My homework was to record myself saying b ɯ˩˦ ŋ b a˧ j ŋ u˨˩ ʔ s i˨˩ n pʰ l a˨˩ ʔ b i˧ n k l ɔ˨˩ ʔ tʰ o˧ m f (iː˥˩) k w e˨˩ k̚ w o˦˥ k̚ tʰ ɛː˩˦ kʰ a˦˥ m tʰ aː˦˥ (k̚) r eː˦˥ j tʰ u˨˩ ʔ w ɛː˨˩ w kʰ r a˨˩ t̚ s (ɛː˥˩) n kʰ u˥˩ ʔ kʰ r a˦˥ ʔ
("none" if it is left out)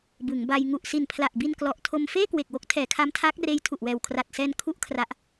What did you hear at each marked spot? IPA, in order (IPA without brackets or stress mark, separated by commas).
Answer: eː˥˩, k̚, ɛː˧